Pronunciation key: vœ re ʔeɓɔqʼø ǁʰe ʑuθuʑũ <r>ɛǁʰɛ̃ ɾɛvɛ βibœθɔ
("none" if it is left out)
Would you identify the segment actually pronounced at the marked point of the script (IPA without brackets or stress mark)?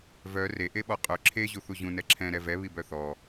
n